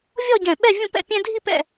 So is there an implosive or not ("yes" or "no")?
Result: yes